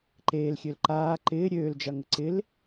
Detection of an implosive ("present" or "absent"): absent